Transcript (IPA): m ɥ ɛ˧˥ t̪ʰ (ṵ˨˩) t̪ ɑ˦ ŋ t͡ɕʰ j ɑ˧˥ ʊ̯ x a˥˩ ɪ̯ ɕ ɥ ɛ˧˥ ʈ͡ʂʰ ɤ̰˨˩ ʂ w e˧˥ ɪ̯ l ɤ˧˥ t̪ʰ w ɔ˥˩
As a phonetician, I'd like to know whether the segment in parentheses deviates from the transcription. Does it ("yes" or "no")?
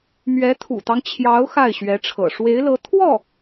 no